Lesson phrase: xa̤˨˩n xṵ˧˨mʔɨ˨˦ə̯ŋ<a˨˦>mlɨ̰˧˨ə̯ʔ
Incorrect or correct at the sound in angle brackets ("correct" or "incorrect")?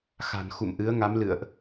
correct